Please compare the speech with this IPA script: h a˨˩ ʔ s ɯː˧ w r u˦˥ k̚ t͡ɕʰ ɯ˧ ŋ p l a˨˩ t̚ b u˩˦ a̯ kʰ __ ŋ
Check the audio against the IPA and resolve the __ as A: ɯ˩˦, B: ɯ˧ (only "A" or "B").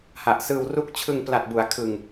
B